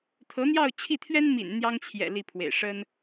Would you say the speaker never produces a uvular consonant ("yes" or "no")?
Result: yes